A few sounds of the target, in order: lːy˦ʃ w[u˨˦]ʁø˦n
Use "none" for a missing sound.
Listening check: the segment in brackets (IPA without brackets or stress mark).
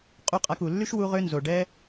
u˦